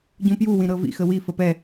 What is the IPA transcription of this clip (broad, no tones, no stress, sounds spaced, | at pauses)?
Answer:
ɟ ũ p j u w ĩ ɾ ɤ v ḭ x ə w i f ə p ɛ